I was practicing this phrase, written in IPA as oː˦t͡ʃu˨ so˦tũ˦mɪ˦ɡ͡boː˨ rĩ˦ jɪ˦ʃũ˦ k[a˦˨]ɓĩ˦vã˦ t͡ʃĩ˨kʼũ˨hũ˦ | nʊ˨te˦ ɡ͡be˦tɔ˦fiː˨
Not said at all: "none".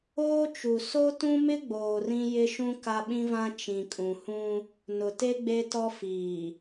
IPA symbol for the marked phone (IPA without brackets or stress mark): a˦